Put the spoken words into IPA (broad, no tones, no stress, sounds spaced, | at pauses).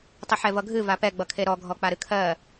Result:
tˤ ə ħ ɛ v ʌ ɡʱ ɨ v a p ɛ ɡ͡b ʌ kʰ e ɾ ɔ ɡʱ ɔ k͡p a ɾ ɨ kʰ ɜ